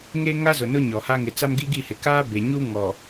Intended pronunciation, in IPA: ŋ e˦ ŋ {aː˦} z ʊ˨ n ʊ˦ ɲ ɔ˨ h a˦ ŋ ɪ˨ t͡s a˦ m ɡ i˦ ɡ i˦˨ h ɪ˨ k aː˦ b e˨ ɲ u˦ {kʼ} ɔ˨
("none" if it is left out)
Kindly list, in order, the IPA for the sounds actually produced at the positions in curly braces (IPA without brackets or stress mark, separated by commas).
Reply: a˦, ŋ